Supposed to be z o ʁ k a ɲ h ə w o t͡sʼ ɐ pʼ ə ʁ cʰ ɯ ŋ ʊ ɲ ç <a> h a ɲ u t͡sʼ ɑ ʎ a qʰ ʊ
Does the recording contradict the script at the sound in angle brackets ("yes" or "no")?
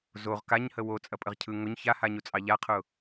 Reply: no